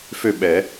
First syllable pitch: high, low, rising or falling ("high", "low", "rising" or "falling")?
falling